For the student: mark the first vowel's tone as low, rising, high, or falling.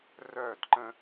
falling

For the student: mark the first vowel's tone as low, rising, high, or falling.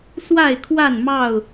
falling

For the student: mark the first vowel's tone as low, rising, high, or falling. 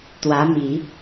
rising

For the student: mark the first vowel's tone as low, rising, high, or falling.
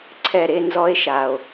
falling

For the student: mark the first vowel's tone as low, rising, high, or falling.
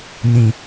low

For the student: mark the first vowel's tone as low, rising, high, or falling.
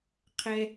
high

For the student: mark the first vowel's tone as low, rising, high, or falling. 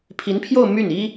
rising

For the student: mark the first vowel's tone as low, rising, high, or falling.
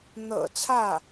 low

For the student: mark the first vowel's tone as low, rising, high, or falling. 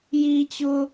high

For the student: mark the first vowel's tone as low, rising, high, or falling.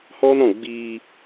high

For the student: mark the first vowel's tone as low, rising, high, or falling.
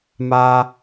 high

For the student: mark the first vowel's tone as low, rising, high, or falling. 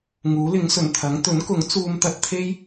rising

